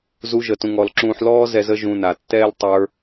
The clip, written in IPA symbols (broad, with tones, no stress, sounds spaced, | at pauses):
z u˦ ʒ ə˧ t ũ˧ ŋ ɔ˧ l ǁ ũː˧ ħ l ɔː˦ z ɛ˧ z ə˦ ʒ ũː˧ n a˨ tː ɛː˦ l tˤ ə˞˦